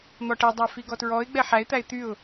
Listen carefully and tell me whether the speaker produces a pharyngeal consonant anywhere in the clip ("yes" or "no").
yes